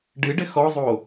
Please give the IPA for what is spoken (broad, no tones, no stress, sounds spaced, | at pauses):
ɖ ɨ ɖ ɘ x ɔ zˤ o